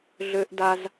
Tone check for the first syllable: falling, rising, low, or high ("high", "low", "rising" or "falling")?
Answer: high